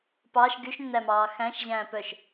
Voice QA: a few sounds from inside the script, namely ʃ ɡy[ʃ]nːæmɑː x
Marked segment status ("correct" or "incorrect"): correct